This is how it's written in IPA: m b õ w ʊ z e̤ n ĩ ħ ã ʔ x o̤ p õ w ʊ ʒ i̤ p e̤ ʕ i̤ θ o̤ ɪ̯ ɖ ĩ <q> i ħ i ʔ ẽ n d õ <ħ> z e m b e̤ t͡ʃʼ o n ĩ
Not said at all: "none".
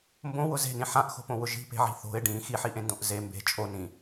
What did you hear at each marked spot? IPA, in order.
x, ʔ

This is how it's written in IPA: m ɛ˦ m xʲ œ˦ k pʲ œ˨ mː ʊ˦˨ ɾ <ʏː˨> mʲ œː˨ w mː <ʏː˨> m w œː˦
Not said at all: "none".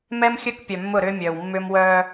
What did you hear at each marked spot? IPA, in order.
ʏː˦, ʏː˦

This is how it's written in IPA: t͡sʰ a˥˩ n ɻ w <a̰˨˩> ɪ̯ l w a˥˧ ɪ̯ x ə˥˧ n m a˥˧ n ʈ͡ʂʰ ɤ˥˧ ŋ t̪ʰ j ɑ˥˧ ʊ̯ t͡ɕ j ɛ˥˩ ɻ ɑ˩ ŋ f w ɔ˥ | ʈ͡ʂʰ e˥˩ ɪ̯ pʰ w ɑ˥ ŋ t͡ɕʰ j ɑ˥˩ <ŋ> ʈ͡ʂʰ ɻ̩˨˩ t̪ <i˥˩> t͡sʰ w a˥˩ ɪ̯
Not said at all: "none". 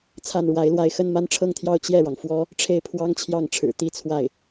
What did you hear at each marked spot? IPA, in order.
a˧˥, ŋ, i˥

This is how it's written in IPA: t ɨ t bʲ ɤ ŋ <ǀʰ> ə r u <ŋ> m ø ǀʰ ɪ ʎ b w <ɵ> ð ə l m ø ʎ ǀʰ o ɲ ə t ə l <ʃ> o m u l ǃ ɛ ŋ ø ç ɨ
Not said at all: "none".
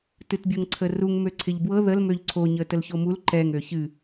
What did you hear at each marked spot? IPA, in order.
ǀʰ, ŋ, ɤ, ç

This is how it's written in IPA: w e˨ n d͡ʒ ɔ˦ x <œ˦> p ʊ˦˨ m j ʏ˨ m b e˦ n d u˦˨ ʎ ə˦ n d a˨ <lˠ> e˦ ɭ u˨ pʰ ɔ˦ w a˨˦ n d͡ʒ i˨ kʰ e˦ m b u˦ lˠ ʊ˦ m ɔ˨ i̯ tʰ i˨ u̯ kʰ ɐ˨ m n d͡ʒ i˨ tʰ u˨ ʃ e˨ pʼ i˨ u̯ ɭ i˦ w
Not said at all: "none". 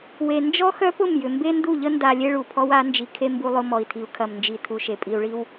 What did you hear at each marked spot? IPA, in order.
œ˦, lʲ

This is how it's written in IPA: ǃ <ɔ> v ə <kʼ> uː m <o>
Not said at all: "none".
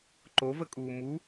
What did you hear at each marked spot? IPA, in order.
o, kʼ, u

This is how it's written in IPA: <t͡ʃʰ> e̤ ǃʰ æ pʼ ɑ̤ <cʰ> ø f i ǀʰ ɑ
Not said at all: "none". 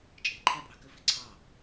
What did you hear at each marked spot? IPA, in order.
t͡ʃʼ, k

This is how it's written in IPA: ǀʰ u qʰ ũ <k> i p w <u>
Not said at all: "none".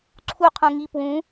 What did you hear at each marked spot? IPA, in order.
ŋ, ũ

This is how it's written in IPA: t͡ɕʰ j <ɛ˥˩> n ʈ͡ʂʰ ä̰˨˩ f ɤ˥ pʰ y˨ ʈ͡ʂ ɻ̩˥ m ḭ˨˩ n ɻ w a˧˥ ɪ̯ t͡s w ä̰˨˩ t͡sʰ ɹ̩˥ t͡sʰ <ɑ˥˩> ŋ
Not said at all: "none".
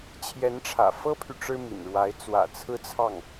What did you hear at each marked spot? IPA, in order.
ɛ˧˥, ɑ˥˩

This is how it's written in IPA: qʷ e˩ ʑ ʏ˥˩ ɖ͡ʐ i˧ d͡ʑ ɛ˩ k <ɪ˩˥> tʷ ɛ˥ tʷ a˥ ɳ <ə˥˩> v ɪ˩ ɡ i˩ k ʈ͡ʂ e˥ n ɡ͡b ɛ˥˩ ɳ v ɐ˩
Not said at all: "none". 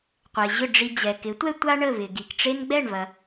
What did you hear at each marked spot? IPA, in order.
ɪ˩˥, ə˥˩

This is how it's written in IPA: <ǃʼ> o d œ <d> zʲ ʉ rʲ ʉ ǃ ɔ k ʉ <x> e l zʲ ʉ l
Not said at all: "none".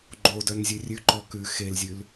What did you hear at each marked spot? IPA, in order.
ɡ͡ǃ, n, x

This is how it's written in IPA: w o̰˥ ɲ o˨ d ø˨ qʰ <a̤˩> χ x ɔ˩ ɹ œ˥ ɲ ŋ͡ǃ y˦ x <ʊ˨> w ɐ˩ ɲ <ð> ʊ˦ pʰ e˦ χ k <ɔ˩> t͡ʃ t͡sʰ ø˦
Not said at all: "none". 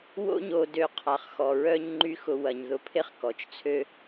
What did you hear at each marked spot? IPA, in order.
a˩, ʊ˨, ð, ɔ˩

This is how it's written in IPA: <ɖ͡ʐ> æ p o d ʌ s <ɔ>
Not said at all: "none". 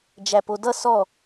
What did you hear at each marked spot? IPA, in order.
d͡ʒ, ɔ

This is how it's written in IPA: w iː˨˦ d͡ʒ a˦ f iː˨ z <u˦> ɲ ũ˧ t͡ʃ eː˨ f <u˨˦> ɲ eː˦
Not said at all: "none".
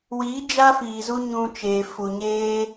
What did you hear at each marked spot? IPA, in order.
u˦, u˨

